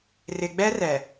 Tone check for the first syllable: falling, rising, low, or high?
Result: low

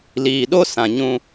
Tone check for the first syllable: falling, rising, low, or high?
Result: low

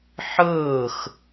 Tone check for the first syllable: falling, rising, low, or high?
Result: falling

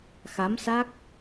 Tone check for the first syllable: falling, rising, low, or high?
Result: rising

